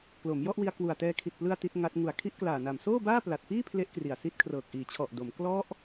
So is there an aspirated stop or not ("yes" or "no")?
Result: yes